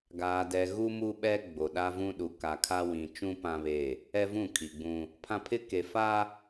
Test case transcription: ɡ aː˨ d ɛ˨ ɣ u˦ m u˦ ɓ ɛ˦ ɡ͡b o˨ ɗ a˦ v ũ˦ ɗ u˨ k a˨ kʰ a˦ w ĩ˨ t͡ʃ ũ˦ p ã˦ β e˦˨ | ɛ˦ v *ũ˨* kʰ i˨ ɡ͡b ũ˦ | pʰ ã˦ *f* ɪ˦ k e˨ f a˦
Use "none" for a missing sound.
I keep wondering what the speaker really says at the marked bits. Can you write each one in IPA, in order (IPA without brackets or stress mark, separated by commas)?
ũ˦˨, pʰ